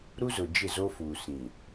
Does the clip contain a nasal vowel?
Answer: yes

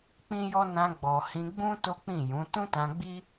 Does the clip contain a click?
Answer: no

